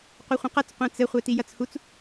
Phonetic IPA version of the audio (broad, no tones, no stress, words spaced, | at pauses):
qʷeχʷɛ̃qɐt͡s qʷɛ̃t͡sɘ χʷɛtijɐt͡shut͡s